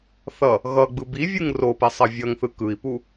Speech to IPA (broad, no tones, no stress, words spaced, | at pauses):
θʌ | ɣʌɡ͡bɯ bivʲɯŋ ropɛsˤʌ vʲʌŋθɯ kɯi̯pu